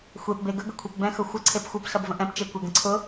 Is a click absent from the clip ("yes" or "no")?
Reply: no